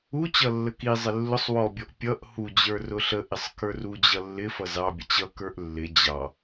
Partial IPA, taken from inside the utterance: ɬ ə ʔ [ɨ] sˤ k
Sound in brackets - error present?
yes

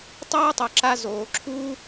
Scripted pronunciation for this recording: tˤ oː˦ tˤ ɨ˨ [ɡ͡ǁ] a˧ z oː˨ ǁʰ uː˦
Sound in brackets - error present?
yes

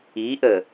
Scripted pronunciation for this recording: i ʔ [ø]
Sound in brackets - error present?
yes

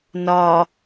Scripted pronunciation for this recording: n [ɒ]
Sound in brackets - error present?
no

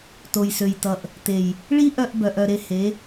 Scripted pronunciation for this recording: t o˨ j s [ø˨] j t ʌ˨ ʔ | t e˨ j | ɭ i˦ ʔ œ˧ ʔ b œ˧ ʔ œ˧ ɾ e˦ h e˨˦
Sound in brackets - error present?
no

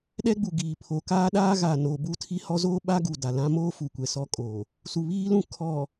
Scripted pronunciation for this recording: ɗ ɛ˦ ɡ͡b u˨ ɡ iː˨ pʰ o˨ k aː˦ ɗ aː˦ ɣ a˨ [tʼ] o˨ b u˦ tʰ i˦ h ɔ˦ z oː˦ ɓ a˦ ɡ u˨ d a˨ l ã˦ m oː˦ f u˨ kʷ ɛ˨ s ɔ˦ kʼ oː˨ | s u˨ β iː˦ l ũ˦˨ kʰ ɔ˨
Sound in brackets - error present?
yes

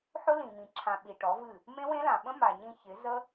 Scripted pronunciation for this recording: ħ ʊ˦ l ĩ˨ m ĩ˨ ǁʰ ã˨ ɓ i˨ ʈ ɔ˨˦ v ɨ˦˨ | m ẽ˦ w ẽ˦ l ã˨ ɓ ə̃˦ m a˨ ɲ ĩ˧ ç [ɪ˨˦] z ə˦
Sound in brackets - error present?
no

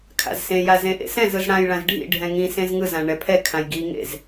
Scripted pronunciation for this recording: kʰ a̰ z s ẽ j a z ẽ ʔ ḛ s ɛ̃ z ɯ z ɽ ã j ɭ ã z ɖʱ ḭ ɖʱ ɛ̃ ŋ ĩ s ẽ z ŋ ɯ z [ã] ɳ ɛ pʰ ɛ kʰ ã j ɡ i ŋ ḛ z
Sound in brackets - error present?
no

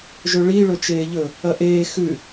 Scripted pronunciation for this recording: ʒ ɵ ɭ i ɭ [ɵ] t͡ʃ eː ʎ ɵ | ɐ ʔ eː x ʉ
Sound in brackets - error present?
no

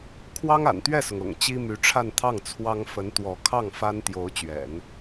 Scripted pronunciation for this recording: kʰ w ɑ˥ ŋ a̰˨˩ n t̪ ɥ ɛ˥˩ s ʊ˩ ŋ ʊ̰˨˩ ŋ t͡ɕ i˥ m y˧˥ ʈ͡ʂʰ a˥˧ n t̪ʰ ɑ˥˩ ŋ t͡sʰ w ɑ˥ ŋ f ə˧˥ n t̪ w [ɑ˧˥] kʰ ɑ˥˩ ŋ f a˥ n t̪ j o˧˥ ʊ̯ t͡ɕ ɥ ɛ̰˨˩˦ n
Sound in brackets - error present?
yes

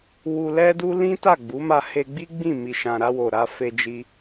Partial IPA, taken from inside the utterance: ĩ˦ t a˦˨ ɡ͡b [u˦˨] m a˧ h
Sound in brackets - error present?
yes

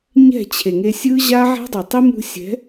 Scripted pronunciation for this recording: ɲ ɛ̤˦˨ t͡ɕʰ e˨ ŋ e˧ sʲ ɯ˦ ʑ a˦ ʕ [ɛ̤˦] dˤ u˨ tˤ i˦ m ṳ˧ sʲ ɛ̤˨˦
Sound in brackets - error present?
no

